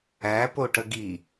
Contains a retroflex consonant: yes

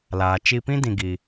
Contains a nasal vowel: yes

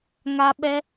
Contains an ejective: no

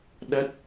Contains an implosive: yes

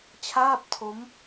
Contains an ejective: no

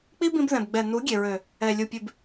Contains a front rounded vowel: yes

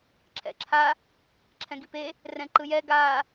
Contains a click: yes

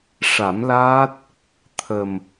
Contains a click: no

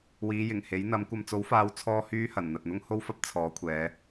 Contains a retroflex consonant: no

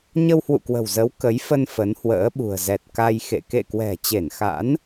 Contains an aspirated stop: no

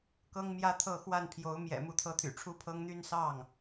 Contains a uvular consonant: no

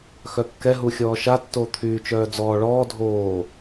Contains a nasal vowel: no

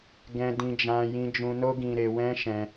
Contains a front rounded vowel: no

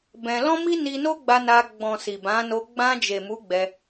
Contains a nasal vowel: yes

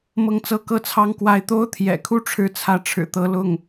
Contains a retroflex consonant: yes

